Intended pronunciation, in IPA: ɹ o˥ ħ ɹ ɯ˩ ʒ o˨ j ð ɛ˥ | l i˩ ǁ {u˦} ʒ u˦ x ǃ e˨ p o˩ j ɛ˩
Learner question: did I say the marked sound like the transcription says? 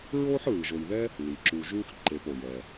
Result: no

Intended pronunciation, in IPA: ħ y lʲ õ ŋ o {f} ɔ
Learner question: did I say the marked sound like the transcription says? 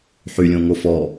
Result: yes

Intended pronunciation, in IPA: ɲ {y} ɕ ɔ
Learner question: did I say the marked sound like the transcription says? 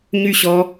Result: yes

